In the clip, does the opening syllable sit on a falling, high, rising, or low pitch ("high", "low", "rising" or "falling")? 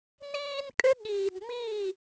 high